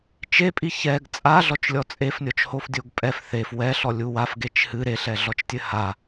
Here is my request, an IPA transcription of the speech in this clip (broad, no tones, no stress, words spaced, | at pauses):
t͡ʃepʼi çɛɡ t͡sʼaɮɔt͡ʃlʲɔ t͡sʼefnʲɔt͡ʃhofdʲoɡ pʼɛf θef wɛɬɔlʲu wafɡet͡ʃ hɨ ɾeɬɛɮɔt͡ʃtʲɘ ha